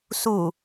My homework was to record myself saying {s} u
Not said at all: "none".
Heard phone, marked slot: s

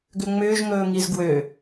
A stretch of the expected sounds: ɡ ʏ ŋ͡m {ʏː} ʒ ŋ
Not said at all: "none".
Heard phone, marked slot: ʏː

